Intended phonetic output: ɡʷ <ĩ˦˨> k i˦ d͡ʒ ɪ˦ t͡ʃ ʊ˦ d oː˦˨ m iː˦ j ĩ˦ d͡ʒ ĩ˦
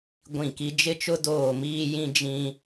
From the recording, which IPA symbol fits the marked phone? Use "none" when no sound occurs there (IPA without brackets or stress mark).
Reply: ĩ˦˨